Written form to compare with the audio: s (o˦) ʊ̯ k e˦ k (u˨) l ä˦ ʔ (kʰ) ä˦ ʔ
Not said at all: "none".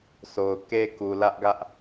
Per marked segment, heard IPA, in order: o˨, u˨, ɡ

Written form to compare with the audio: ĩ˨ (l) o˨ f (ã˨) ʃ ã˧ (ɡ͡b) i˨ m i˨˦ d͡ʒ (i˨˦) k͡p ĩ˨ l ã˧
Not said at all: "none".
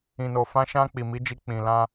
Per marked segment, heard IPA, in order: n, ã˧, k͡p, i˧

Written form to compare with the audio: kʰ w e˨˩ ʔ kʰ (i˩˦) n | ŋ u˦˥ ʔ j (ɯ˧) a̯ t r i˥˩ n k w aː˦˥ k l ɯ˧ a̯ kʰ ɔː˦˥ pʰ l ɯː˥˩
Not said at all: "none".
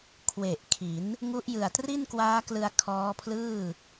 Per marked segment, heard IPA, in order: i˩˦, ɯ˨˩

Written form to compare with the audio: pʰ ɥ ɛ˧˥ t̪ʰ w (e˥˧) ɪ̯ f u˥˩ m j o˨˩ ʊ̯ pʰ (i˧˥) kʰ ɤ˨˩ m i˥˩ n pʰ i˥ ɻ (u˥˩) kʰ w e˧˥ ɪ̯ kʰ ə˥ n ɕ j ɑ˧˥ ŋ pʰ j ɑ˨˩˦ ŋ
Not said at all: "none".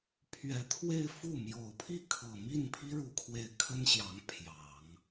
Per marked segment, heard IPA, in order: e˥˧, i˥˩, u˧˥

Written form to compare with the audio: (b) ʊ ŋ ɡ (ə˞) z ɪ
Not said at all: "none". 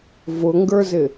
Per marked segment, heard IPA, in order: v, ə˞

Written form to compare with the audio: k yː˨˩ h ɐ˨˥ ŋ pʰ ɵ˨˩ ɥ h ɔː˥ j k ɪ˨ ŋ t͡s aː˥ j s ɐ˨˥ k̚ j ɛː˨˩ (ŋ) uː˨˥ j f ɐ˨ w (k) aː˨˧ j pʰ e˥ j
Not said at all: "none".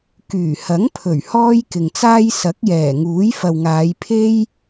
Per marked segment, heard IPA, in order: ŋ, ŋ

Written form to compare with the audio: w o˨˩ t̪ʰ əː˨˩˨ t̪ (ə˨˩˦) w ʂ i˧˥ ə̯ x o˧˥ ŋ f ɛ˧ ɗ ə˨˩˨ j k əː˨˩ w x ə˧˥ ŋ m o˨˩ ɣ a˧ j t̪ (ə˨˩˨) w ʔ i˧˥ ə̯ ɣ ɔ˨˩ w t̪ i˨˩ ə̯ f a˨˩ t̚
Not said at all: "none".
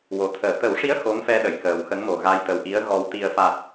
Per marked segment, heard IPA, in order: ə˨˩˦, ə˨˩

